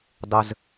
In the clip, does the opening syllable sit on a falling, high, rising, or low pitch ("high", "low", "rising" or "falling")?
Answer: low